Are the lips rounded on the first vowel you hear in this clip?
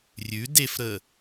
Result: yes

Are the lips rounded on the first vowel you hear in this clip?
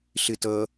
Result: no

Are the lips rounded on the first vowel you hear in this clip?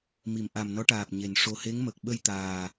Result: no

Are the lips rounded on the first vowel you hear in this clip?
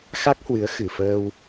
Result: no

